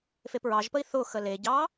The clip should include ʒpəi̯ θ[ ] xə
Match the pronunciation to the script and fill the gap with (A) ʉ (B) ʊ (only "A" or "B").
B